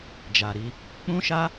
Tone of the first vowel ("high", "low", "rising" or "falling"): low